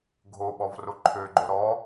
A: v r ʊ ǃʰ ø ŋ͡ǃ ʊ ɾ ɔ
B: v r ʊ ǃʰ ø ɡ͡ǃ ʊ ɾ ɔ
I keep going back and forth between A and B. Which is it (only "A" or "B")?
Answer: B